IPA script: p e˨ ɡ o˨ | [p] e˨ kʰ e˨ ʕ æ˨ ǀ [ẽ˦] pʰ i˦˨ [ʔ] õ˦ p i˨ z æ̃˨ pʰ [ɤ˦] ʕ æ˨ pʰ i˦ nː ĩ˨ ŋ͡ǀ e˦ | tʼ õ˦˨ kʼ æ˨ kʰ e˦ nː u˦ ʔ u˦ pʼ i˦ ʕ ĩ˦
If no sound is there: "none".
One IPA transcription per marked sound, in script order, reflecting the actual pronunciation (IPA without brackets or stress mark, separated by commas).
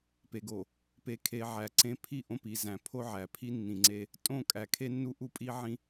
p, ẽ˦, ʔ, o˦